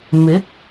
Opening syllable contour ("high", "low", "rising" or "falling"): rising